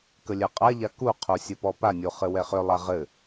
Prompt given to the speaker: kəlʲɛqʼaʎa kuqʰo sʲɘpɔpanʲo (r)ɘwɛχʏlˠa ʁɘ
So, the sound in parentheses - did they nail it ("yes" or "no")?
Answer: no